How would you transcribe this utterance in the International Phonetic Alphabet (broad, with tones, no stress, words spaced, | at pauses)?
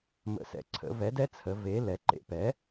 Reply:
mə̰˩˧sɛ̰˩˧ǀʰə̰˩˧ vɛ˩˥dɛ˧˥t͡sʰə˩˧ ve˩˥ lɛ˩˧ǃḛ˩˥pɛ˩˥